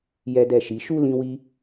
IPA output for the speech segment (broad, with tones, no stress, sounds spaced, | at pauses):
j ɛ˦ d ɛ˦˨ ʃ i˨˦ ʃ u˦ l ĩ˧ w i˧